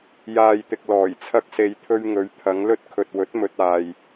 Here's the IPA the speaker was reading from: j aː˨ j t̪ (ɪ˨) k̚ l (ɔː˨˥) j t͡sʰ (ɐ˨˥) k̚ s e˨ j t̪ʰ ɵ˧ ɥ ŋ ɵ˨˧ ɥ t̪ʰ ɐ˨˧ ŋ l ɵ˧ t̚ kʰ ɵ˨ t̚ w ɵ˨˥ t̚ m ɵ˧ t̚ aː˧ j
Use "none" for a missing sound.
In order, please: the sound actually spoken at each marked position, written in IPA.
ɪ˨, ɔː˨˩, ɐ˧

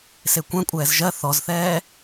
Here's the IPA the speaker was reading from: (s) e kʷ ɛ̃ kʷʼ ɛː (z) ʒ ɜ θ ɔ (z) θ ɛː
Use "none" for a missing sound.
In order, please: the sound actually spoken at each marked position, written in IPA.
s, z, z

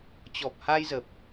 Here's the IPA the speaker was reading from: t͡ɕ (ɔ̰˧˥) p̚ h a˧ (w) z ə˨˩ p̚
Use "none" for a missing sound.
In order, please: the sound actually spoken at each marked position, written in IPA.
ɔ˨˩, j

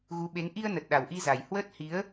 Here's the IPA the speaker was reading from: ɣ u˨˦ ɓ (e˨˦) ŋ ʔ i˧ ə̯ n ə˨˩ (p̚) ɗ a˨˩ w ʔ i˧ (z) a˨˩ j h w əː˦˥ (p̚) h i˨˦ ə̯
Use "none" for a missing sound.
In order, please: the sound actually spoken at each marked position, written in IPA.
e˨˦, t̚, z, t̚

